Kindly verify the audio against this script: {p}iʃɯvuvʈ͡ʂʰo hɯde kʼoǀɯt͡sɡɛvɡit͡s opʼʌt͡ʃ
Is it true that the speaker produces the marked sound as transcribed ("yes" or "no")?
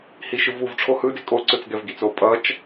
no